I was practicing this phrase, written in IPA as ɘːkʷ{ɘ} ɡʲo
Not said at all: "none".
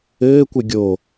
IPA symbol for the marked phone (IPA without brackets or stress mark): ɘ